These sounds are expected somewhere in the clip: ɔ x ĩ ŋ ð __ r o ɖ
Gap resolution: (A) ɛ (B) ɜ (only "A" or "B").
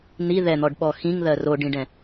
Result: B